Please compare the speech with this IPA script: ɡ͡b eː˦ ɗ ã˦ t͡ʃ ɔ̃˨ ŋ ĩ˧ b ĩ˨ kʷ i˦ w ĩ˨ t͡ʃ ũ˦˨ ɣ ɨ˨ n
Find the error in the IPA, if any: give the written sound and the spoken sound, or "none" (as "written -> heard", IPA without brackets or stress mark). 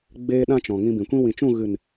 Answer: i˦ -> ĩ˦